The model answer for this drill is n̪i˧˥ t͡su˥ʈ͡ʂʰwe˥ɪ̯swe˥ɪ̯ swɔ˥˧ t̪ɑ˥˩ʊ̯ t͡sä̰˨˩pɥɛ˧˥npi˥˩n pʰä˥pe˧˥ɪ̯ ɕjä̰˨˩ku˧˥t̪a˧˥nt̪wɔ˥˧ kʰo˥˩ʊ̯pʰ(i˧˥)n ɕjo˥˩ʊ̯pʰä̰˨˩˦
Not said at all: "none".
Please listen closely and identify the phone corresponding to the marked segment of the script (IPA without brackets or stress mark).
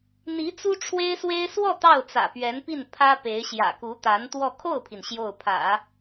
i˩